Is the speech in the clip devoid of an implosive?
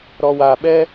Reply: no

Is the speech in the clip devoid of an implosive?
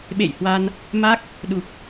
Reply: no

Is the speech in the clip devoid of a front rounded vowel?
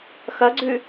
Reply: yes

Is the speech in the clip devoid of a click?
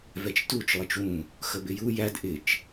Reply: yes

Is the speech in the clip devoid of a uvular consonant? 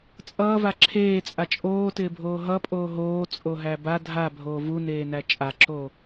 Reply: yes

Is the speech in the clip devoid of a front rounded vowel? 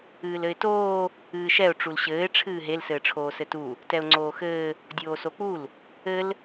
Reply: yes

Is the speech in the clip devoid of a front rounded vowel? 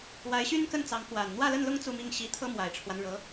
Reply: no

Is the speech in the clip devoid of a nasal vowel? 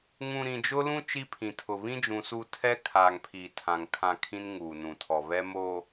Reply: no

